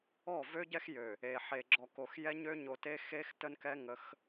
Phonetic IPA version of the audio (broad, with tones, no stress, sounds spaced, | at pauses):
ɔ˦˨ v ø˦ ɟ ɛ˦ x j ø˨ | e˨ ħ e˨ ɡ͡ǁ ɔ˨ k o˨ x j ɛ˦ ɲ ø˦ ɲ o˨ t e˦ x e˦ x t ə˦ n k ɛ˦ ŋ ə˨˦ x